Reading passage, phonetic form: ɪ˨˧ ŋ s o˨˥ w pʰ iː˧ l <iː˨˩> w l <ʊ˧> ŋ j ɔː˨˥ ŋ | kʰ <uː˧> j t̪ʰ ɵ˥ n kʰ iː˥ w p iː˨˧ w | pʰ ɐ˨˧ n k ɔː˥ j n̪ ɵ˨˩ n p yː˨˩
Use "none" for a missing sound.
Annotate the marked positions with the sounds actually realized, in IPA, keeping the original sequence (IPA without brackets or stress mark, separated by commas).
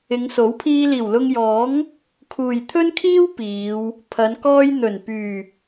iː˨˩, ʊ˧, uː˨